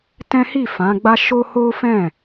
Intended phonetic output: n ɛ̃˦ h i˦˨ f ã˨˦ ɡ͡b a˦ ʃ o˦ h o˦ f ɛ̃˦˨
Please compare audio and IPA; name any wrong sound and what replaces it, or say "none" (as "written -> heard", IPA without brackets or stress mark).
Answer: n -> t